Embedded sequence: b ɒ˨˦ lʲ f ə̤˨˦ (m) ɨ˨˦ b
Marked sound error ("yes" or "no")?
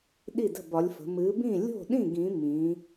no